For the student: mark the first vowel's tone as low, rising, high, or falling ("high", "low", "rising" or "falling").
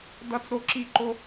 high